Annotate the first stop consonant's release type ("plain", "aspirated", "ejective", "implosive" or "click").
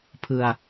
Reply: aspirated